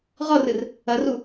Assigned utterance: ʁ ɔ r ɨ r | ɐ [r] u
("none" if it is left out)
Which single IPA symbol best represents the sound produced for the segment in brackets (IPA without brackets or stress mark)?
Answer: r